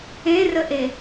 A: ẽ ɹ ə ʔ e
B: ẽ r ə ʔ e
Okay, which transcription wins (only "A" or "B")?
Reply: B